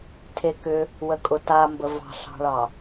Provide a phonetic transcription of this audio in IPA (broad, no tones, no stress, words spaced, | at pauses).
tʰekʏ | wəkʼʊtambə vɑ̤ɬɑ̤ɭɑ